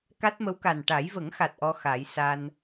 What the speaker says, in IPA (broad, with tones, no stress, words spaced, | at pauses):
ka˦˥t̚ mə˧˥wka˨˩n ʈa˨˩˦jvə˨˩˦ŋxa˨˩t̚ ʔɔ˧xa˨˩˦j sa˧n